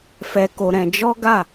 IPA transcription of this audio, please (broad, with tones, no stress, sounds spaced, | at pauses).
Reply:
f ɛ˧ k o˧ ɾ ɛ̃˧ d͡ʒ ɔ˦ ɡ a˦˨